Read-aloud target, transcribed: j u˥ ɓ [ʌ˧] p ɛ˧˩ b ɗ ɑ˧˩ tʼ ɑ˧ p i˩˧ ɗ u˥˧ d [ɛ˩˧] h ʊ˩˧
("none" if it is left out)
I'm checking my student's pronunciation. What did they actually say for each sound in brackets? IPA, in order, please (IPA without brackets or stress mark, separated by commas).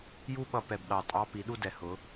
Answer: ʌ˧, ɛ˩˧